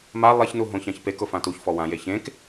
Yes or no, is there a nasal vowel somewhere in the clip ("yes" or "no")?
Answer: yes